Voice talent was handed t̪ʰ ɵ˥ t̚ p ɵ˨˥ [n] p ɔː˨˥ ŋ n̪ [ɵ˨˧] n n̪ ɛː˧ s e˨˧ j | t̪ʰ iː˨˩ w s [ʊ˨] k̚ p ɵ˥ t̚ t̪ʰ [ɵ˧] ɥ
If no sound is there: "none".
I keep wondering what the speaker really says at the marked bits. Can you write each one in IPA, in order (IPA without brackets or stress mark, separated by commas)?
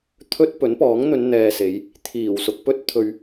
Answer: n, ɵ˨˧, ʊ˨, ɵ˧